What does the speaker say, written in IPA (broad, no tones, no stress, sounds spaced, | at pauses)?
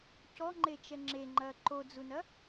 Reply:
c ɔ ŋ͡ǃ e t͡ʃ ɛ ŋ͡ǁ e ŋ͡ǃ ɐː ǃ o d͡z u n ɐ